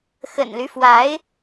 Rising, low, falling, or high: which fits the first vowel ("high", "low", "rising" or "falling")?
low